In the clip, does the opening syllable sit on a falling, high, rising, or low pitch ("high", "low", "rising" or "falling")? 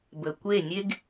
low